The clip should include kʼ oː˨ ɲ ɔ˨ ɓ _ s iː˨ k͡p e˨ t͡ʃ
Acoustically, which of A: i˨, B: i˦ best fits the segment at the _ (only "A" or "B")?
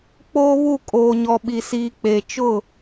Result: A